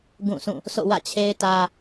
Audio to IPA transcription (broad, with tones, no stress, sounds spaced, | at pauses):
ɡ ũ˦˨ s ũ˦˨ | s o̰˦˨ w ä̰˦˨ t͡ɕʰ e˦ ɪ̯ t ä˦